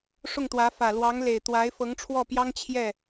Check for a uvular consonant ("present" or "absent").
absent